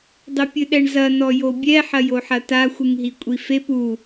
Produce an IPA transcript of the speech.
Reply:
dˤɘpʲɨɗɛɳzɐ nɔjobʲɛ ħɐjoħɐta xʷɨŋɦikʷʼifep u

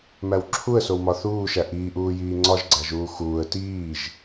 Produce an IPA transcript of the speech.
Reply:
mæwǁʰuə̯sowmɒ θuːʃæ ʔiːʔuː jiːŋ͡ǀɒʒɡ͡ǀæʒuː xuːə̯ tiːʒ

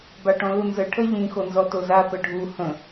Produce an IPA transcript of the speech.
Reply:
baʈɔ̃lunzə ʈʰəʎĩ xonzɔtoza pəɖʱu hə̃

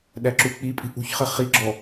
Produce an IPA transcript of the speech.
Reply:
ɗæǁuk͡pipʼi̤ ʔṳçχə χiɡ͡ǁɔ

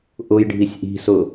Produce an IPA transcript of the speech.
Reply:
ʔʊjɖʱisʲ ʔi̤sʊ

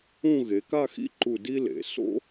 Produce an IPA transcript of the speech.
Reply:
ũ˥˧ ɣe˩˧ka˥˧xḭ˥ǃu˧˩ di˥lḛ˩˧ so̰˥

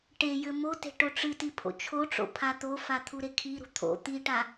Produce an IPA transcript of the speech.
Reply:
ʈejɘ mote̤ ʈoʈ͡ʂɨti pʰo̰t͡ʃʰoʈ͡ʂo̰ pʰat̪ofa t̪ʰuɾekʰiɾṳ t̪ʰo̰ t̪iʈa

